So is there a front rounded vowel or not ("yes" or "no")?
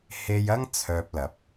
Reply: yes